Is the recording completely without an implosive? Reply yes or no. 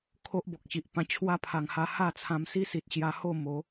yes